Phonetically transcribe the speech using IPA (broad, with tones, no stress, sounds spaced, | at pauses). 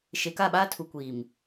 ʃ e˨ k a˦˨ ɓ aː˦ tʰ u˨ kʷ iː˨ m